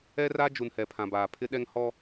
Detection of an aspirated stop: present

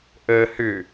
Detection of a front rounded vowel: present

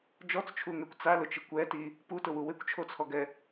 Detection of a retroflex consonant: absent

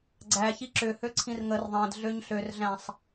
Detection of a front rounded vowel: present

